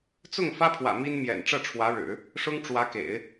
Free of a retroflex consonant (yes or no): no